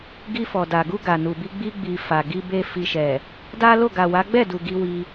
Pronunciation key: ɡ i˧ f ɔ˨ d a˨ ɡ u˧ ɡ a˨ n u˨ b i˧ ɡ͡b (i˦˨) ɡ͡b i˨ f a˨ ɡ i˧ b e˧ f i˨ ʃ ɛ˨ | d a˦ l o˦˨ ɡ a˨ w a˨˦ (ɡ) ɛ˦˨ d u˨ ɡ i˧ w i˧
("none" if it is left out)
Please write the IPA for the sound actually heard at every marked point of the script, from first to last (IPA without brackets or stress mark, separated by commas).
i˧, ɡ͡b